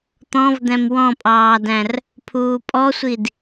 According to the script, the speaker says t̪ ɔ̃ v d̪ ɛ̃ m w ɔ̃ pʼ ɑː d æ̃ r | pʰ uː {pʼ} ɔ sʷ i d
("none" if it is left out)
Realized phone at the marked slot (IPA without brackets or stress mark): pʼ